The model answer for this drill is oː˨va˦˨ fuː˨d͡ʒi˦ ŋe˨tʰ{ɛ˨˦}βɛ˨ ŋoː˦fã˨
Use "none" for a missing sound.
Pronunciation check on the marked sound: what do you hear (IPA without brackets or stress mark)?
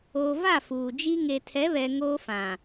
ɛ˨˦